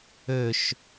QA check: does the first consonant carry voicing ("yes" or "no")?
no